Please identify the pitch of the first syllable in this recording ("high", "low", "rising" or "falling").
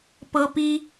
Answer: high